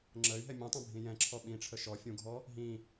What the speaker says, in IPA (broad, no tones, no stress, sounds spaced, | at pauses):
ŋ͡ǁ ə y̯ ɦ ɛ mʲ ũ tˤ ɛ̃ bʱ ĩ j ɛ̃ ǁʰ ɔ ɓ ĩ ʈ͡ʂʰ ə ʃ ɔ fʲ ũ ɡʱ ɔ | ɦ ĩ